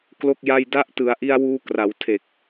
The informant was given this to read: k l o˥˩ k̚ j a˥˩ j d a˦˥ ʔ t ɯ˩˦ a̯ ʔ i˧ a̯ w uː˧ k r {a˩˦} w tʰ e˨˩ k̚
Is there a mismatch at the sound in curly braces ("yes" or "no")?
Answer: no